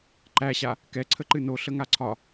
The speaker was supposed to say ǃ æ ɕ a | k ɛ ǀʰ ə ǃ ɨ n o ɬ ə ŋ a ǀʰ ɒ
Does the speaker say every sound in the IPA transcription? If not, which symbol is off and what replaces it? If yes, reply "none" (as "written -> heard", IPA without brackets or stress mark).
none